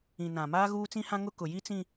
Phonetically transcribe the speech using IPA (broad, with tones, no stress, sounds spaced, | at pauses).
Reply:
ĩ˨ n ã˨ m aː˦ ɣ uː˦ t͡s ĩ˦ h ã˦ ŋ ʊ˦ k ʊ˨ j i˦ t͡s ĩ˦